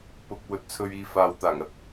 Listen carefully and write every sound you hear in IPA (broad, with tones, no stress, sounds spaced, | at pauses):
p ʊ˨ k̚ w ɵ˨ t̚ t͡sʰ ɵ˨ ɥ iː˨ f aː˨ w t̪ aː˨˩ ŋ ɐ˨˥ t̚